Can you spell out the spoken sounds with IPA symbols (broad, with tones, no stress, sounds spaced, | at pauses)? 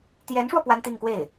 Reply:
t̪ j ɛ˧˥ n ʂ w ɔ˧ p w a˥ n t̪ i˥˧ ŋ k w e˥˩ ɪ̯